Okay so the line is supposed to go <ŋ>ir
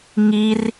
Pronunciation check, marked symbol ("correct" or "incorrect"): correct